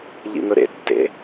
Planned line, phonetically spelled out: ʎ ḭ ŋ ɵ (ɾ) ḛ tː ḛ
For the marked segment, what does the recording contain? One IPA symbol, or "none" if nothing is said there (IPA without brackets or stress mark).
ɾ